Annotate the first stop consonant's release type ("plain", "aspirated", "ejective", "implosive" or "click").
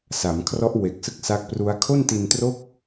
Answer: aspirated